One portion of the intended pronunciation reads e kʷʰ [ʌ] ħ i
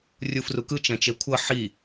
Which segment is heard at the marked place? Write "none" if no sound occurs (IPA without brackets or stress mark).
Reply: ʌ